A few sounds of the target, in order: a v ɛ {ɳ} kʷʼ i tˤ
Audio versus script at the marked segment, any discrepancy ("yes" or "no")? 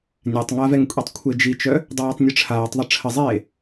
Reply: yes